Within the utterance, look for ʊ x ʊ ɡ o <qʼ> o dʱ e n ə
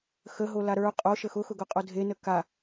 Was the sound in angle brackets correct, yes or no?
yes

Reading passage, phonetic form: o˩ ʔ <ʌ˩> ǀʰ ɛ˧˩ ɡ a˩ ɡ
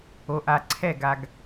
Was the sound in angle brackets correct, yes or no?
no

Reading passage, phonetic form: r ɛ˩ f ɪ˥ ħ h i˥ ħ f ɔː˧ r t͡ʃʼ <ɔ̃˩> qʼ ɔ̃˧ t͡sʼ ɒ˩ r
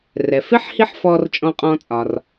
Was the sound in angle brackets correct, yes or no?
no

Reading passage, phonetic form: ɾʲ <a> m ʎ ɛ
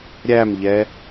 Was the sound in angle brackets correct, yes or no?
no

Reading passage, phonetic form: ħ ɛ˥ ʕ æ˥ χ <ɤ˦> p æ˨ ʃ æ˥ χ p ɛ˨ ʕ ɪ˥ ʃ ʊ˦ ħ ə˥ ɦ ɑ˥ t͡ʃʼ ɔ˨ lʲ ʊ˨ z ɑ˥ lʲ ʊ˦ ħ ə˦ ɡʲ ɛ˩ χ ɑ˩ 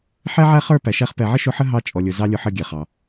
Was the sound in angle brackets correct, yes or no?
no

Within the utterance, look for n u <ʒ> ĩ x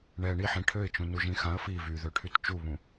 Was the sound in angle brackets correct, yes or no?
yes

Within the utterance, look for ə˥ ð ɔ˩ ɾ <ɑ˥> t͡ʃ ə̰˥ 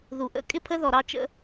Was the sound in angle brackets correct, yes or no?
yes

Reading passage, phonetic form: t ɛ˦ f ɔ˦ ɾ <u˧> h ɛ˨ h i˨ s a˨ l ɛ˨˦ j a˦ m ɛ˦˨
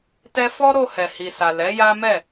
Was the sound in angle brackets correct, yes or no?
no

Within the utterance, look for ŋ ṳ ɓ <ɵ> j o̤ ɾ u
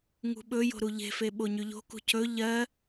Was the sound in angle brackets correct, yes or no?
yes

